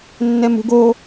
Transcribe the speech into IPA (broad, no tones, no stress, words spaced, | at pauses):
nːɛmṳɡo